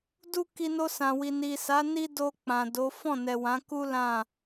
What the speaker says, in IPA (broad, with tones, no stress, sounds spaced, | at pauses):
d u˦ k i˧ n o˧ s ã˨ w i˨ n i˨ s a˨˦ n i˦ d o˧ k͡p ã˨ d o˨˦ f ɔ̃˦˨ n ɛ˨ w ã˨˦ k u˦ l ã˦˨